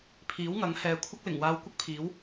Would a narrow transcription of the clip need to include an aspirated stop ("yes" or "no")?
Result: yes